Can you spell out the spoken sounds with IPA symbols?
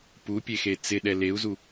p u pʲ e x e t͡s ɪ ɗ ɛ l e u̯ z u

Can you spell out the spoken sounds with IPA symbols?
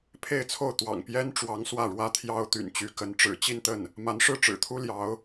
pʰ e˥˧ ɪ̯ t͡sʰ o˥˩ ʊ̯ t̪ w ɑ̰˨˩ ŋ p j ɛ˥ n ʈ͡ʂ w ɑ˧˥ ŋ s w ä˥˩ ɻ w ä˥ t̪ʰ j ɑ˥ ʊ̯ t̪ y̰˨˩ n t͡ɕ y˧˥ k ə˧˥ n ʈ͡ʂ ɻ̩˨˩ t͡ɕ i˥˧ n t̪ ə˥˩ n | m a˧˥ n ʂ ɻ̩˥˩ ʈ͡ʂ ɻ̩˨˩ t̪ʰ u˥ l j ɑ˧˥ ʊ̯

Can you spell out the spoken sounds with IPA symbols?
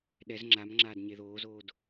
ɗ ɛ z ŋ͡ǁ a m ŋ͡ǁ aː d ɲ e ð oː z oː d

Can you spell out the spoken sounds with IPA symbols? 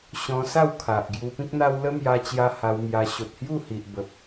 ɕ ɔ̃˧ s a˥˧ w kʰ a˨ ʔ ɡ j u˧ p ĩ˦ k̚ n̪ a˦ w l ə˦ m j a˧ t͡ɕ j a˦ h a˧ w m j a˧ ɕ o˨ t̚ h j u˥˧ h i˨ ʔ b ə˨ p̚

